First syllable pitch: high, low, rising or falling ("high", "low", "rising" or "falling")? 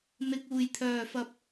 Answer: low